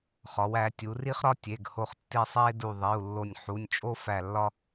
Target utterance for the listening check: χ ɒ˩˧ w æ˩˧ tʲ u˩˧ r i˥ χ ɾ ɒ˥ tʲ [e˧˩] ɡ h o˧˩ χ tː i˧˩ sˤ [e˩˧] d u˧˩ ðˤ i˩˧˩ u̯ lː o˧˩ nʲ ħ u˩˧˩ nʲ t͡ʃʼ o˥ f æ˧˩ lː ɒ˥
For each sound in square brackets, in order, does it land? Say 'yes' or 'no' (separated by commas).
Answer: no, no